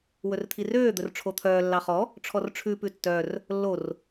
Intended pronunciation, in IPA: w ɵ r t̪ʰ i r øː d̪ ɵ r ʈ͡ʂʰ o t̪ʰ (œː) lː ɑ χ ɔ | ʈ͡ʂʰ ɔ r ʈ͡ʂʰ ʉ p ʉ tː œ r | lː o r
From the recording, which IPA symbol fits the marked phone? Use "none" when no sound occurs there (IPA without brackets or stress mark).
œː